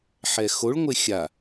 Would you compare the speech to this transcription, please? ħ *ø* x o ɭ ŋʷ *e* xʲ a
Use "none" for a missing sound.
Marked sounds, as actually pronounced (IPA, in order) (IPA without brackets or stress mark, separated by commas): ɛ, e